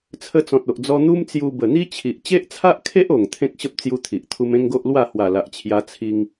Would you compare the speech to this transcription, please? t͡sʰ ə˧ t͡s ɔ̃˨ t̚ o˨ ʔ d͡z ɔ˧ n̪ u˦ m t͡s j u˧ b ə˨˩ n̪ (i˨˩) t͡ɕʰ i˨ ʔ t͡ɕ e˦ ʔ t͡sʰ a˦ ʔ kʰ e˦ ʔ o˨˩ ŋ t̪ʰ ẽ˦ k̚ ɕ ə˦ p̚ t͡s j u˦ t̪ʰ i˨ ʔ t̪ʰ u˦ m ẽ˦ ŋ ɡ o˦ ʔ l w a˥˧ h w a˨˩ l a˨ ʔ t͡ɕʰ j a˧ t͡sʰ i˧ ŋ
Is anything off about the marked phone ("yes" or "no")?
yes